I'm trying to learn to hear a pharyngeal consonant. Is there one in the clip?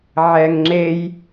yes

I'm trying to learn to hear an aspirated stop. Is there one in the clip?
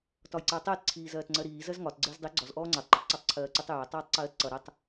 yes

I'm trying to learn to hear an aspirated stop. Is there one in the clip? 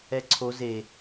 yes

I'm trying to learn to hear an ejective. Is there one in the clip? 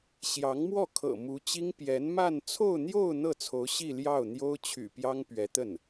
no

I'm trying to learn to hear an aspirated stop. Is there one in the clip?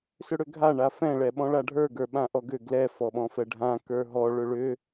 no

